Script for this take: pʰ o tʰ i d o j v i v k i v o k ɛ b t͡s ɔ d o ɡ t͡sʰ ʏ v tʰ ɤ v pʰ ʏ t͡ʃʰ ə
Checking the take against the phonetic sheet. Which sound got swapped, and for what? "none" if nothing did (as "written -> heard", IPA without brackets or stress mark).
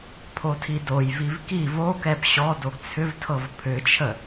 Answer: t͡s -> ɕ